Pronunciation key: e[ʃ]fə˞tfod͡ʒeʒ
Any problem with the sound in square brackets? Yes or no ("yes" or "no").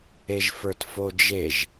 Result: yes